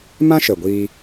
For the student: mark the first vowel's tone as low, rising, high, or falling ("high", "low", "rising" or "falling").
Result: high